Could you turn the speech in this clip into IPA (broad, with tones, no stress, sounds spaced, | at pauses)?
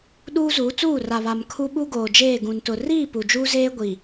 ɗ uː˦ z uː˨˦ t͡s uː˦˨ r a˨ β a˨ m kʰ u˦ ɓ u˦ ɡ oː˨ d͡ʒ eː˦˨ ɡ ũ˨ n t ʊ˨ r iː˦˨ p u˨ d͡ʒ uː˦ z eː˦ ɡʷ i˨